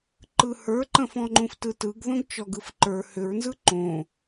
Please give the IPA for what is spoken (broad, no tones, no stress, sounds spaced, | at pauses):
ǃ ɯ h ə˞ ǃ ə̃ f ɔ̃ ŋ͡ǃ ũ f t ɯ t ɯ ɡ ð õ ɡ t͡ʃ ɔ ɡ ɯ f ǃ ə˞ h ʏ ɹ n z ɯ ǃ õ